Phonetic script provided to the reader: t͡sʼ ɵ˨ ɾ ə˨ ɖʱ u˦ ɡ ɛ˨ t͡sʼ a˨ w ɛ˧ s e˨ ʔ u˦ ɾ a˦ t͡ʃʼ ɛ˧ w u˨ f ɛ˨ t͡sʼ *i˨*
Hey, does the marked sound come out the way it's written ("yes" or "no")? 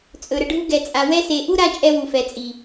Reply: yes